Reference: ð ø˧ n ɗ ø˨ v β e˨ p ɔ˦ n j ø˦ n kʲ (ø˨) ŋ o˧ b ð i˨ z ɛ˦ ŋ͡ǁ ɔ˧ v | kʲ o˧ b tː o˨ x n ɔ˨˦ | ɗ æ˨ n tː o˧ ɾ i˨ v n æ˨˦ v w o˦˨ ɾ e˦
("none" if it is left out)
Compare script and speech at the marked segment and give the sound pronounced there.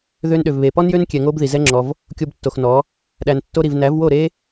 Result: ɛ˨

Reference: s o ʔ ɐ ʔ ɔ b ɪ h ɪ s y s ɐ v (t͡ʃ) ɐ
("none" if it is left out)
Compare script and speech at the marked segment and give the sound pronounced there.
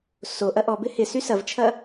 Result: t͡ʃʰ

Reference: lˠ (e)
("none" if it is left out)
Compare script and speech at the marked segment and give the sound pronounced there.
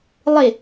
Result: e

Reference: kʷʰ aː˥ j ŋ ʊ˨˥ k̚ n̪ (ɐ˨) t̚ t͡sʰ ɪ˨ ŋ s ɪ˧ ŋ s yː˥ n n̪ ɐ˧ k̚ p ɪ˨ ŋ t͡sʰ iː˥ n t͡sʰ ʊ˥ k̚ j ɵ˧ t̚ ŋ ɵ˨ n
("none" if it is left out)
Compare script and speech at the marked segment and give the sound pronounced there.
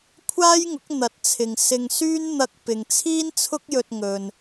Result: ɐ˨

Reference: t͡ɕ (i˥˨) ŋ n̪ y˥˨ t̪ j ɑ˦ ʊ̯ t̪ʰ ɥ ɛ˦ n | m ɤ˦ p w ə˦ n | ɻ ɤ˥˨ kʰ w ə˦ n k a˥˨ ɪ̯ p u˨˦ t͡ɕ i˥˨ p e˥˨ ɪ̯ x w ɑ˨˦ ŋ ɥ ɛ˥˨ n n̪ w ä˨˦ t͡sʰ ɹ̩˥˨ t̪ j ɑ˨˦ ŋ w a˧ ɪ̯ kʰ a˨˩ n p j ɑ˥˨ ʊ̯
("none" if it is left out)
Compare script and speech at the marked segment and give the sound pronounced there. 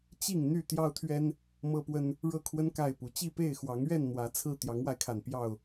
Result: i˥˨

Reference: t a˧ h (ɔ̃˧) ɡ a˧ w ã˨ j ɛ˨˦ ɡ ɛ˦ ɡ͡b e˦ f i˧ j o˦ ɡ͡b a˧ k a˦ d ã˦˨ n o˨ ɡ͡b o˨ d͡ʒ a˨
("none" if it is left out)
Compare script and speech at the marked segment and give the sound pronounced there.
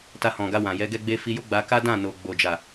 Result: ɔ̃˨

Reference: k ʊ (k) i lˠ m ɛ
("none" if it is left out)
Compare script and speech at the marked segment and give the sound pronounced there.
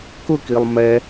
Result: k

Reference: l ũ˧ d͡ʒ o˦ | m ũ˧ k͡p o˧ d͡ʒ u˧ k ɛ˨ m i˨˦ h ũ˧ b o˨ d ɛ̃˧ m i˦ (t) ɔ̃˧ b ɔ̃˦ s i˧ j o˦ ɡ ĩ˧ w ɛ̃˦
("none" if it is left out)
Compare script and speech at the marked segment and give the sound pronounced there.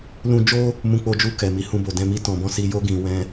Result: t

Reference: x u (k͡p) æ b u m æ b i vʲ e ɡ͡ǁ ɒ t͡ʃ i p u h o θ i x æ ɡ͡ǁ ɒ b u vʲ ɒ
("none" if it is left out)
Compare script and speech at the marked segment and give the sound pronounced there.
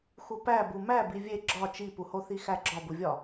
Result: p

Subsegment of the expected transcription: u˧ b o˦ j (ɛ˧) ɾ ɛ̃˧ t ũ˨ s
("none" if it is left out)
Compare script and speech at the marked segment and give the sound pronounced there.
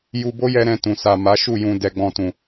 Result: ɛ˧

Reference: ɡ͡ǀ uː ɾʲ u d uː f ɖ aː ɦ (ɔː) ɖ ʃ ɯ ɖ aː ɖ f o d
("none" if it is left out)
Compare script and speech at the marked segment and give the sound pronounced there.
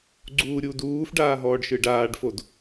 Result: ɔː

